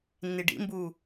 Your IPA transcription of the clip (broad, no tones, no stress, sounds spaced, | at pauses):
nː i ɖ ḭ m b uː